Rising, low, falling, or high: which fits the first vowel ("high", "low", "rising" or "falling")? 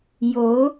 rising